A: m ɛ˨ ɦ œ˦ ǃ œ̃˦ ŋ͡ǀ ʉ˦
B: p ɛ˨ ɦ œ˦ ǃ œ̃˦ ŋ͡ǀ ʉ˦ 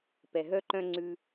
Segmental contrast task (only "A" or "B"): B